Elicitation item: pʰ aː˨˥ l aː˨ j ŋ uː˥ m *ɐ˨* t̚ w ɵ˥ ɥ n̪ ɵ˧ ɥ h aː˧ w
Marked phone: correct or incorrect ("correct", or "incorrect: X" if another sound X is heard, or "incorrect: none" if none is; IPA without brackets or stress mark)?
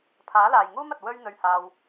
correct